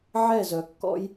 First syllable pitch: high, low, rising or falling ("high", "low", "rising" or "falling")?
falling